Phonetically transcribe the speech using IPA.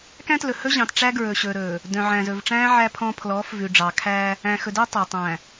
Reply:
k æ̃˦ t l ɵ˨ h ɵ˦ ʑ ɑ̃˨ t ʈ͡ʂ æ˦ ɡ ɹ ɵ˨ ɕ ɵː˨ ɾ ɵː˨ | d œ̃˨ ʕ æ̃˨ z ɵ˨ v ʈ͡ʂ æ̃ː˦ ʕ æ˦ pʰ ɔ̃˦ pʰ l ɔː˨˦ f v ʉ˨ ɖ͡ʐ ɑ˨ kʰ æː˦ | æ̃˨ x ɵ˨ d œ˦ tˤ ɑ˨ tˤ æ̃˨

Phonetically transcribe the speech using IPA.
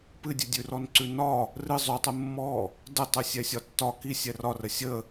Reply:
p ɨ dʲ ɨ dʲ ʉ r ɔ n ǀ ʉ n ɒ | r ɨ zˤ ʉ tˤ ɨ mː ɔ | d ə tˤ ɨ sʲ ɛ sʲ ɒ tː ɒ k i sʲ ɛ r ɒ r ə sʲ ə

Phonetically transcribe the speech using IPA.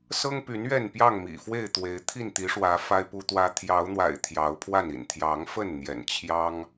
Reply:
s ɤ˦ ŋ p y˨˦ n ɥ ɛ˥˨ n p j ɑ˥˨ ŋ m ḭ˨˩ f w e˥˨ ɪ̯ t̪ w e˨˦ ɪ̯ t̪ʰ i˥˨ n t̪ i˨˦ ʂ w ä˨˦ f a˦ ɪ̯ p u˦ t̪ w ä˦ t̪ʰ j ɑ˨˦ ʊ̯ n̪ w a̰˨˩ ɪ̯ t̪ʰ j ɑ˨˦ ʊ̯ pʰ w a˥˨ n ḭ˨˩ n t̪ʰ j ɑ˨˦ ŋ f ə˥˨ n n̪ j ɛ̰˨˩ n t͡ɕʰ j ɑ˦ ŋ

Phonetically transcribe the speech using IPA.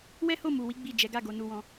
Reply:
w ɛ˦ h o˦˨ m u˨ w i˨˦ ɡ͡b i˦˨ d͡ʒ ɛ˨˦ ɡ a˦˨ ɡ o˨ n u˧ w ɔ̃˧

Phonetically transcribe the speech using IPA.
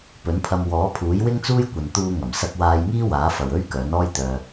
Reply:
p ɵ˨˥ n pʰ ɐ˧ m w ɔː˨˥ pʰ uː˨˥ j w ɪ˥ ŋ t͡s uː˥ j kʷ ɐ˨ n t̪ uː˧ ŋ ɐ˨˩ m s ɐ˧ k̚ w aː˧ j ŋ iː˥ w aː˨˥ f ɐ˨ w ɵ˥ ɥ k œː˨˥ n ɔː˥ j t̪ œː˧

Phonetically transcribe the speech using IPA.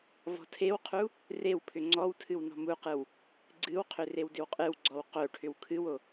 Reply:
v ɔ̤ tʰ e w qʰ u | r e w pʰ ʏ ŋ͡ǀ ɔ w tʰ ɨ w n ɔ̤ m u q ɯ w | ɡ͡ǀ ɨ w qʰ ʏ r e w d ʏ w qʼ ɨ w ɡ͡ǀ ɔ w q o ʈʰ ʏ w kʰ ɨ w o

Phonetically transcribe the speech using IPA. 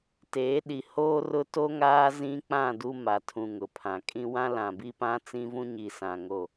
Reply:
t eː˨˦ ɗ i˨ h oː˦ r ʊ˦ t o˦ ŋ aː˦ z ĩ˦ k͡p ã˦˨ d u˦ m a˨ tʰ ũ˨ ŋ ʊ˨ pʰ ã˨ kʼ ĩ˦ w ã˦ l ã˨ b i˦ p ã˦ t͡s ĩ˦ v ũ˦ ɲ i˨ s ã˨ ŋ o˦˨

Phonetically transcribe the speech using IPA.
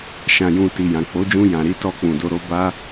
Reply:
ʃ ã˨ j ũ˨ t i˨ j ã˨ k͡p o˨˦ d͡ʒ ũ˧ j ã˨ ɾ i˨˦ t ɔ˧ k͡p ũ˨ d o˧ ɾ o˦ b a˦

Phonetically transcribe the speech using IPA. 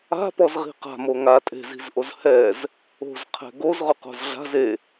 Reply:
a̤ p ɔ z ʁ i̤ q a̤ m o ŋ a tʼ e̤ z i̤ z ʔ o z h ɛ z | o̤ z qʰ ɛ̤ ɡ o z ʁ ʊ q o̤ z ɮ a̤ z e

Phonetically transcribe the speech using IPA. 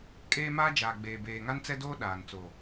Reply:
kʼ eː˦ m aː˦ d͡ʒ aː˨ ɡ͡b eː˨ b eː˨ ŋ a˦ n t͡s ɛ˦ d oː˦ ɗ aː˨ n t͡s oː˨

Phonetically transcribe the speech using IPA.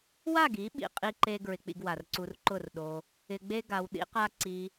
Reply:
w a˦˨ ɡ i˨˦ ɓ ḭ˨ qʼ i˦ ǃ e˦ ɡ ɹ ɪ˧ k͡p ḭ˧ ɡ w a˨ r ǀ u˧ r ǃ ʊ˦˨ r ɗ o˧ | ɪ˧ ɡ͡b e˦ ɡ a˧ w ɗ ḭ˦ q a˦ ǀ i˧

